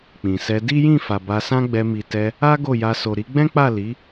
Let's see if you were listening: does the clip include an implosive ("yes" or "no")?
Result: no